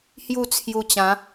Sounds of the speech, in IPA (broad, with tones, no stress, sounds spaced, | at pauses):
h j u˥˧ t͡sʰ j u˧ t͡ɕ ã˨˦